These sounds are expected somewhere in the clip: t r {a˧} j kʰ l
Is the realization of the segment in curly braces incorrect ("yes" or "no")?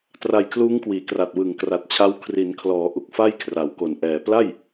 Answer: no